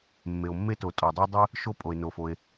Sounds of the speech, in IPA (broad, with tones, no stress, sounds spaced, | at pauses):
mː e˩ o̯ mː e˥ t o˩ tʼ ɔ˩ dˤ o˥ dˤ ɨ˥ | ʃ o˥ pʼ o˩ e̯ n o˩ f o˩ e̯